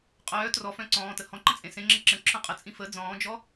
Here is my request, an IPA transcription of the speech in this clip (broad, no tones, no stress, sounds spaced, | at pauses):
qʼ œː t r ɔ f œ̃ ǀ ɔ̃ː t ə h ɔ̃ ǃ ə̃ t͡sʼ ẽ s ẽ ŋ͡ǁ ə ǁ ə̃ ǁʰ œ̃ qʼ ə t͡sʼ ĩ f ə d͡z ɔ̃ː d͡ʒ ɔ